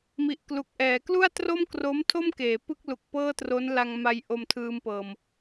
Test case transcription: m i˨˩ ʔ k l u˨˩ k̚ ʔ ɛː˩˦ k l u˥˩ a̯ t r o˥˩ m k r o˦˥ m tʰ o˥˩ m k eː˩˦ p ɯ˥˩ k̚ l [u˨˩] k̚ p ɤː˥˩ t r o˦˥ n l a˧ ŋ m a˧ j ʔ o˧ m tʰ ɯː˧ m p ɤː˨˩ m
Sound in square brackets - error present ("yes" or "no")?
no